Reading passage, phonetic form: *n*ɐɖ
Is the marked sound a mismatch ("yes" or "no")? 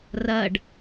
yes